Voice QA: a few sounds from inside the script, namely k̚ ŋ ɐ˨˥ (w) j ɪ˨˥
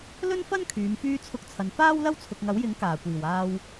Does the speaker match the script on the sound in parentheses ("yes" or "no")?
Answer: yes